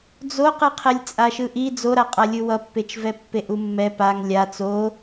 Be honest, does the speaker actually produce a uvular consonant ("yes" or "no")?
yes